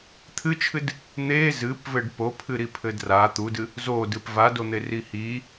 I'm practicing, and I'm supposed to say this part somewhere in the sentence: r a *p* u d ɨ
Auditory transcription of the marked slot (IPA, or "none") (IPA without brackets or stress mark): t̪